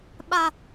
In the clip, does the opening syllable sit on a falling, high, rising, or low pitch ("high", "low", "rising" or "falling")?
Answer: high